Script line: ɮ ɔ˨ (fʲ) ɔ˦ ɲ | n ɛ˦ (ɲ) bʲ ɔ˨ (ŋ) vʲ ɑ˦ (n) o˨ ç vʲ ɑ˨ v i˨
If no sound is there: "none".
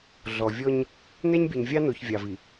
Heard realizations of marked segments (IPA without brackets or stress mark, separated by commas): vʲ, ɲ, ɲ, n